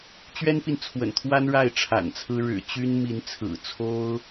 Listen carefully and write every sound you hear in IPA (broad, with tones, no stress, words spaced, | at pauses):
t͡ɕɥɛ˥npi˨nt͡sʰwə̰˨˩nt̪ʰwa˥n ɻa˥˩ɪ̯ʈ͡ʂʰa̰˨˩nt͡sʰɹ̩˥ ɻɻ̩˨˩t͡ɕy˥n mi˧˥nt͡sʰɹ̩˨˩t͡sʰo˥ʊ̯